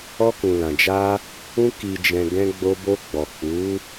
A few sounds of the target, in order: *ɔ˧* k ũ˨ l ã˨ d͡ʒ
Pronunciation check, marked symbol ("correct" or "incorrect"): correct